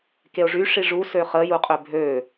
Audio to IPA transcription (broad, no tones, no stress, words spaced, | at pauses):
keo̯ʐy ʂiʐu søχə juqʼøbʱø